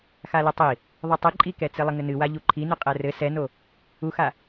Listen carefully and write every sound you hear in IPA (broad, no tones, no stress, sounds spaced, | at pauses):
x a l ɘ tˤ i | ðˤ ɨ tˤ ɨ ǃʼ i k ɛ t͡s ɘ lˠ ɘ ŋ ɘ n ɨ w a ʎ u ǃʰ i n ɨ qʼ ɛ r ɘ s ɛ n o | u x a